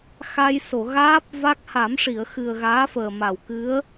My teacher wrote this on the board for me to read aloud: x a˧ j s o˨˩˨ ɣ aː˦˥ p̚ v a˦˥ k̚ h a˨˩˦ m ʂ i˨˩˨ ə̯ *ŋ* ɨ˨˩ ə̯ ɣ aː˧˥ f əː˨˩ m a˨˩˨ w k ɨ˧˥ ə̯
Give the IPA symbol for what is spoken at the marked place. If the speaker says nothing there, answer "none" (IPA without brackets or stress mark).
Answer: x